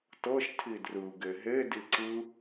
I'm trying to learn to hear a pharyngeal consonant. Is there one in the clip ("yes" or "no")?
no